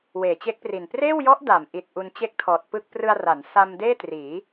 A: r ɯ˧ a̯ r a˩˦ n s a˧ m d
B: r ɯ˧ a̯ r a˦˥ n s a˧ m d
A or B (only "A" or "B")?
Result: A